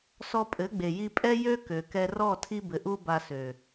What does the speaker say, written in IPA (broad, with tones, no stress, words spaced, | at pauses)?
sɔ˧pʼɘ˨˦ɡ͡be˨ji˧ pʼɛ˦ jø˦ kø˨kɛ˧rɔ˦˨ tʰi˧bɘ˨ʔu˧ ba˧sø˨